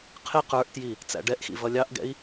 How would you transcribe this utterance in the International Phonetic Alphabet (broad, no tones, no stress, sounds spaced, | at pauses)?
qʰ ɪ q ə˞ ʔ t j i | t͡s æ̰ ɖ ɛ ʔ x ḭ v ʌ lʲ ɑ ʔ ɡ ɛ̰ i̯